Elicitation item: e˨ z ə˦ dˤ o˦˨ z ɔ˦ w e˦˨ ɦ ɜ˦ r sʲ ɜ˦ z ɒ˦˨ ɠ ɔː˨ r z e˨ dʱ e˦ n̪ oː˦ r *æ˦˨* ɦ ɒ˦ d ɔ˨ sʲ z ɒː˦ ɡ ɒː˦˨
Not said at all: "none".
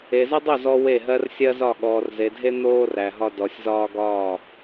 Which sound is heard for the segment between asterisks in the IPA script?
æ˨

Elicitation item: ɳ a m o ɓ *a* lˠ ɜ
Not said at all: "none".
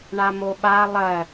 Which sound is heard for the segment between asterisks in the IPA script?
a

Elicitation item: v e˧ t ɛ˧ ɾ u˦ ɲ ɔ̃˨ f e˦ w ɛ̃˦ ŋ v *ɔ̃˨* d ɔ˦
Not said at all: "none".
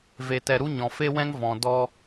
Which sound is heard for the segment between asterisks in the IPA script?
ɔ̃˨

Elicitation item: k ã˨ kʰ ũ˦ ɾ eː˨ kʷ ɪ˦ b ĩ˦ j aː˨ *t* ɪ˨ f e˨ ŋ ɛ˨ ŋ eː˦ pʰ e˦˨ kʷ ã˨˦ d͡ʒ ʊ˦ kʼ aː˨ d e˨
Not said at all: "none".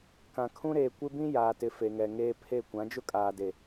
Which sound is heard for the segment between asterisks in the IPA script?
t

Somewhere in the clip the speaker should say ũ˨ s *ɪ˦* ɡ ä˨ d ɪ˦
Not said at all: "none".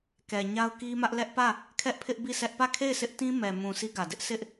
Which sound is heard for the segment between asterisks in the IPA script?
i˦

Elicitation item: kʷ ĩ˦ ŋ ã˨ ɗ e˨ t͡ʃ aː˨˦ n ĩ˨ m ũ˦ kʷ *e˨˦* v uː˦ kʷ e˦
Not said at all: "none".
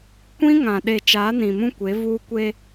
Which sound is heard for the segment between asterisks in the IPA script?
e˨˦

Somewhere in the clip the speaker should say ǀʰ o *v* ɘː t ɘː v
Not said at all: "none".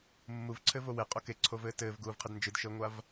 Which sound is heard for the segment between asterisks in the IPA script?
v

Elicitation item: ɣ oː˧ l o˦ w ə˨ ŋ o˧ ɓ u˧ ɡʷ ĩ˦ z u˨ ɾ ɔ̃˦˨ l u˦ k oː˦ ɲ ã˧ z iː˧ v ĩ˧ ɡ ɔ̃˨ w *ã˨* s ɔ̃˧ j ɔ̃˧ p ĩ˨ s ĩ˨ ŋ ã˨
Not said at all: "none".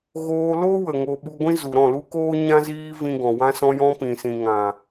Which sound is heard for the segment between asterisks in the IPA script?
ã˧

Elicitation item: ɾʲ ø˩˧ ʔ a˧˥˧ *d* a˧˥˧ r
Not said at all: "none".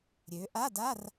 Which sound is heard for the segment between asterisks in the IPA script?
d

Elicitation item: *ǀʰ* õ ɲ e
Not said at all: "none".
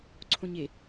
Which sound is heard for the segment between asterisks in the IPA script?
ǀʰ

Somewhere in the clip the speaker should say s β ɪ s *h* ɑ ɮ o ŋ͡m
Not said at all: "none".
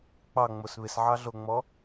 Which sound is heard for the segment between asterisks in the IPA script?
ʕ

